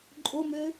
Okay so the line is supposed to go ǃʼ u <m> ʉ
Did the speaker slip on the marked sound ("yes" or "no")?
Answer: no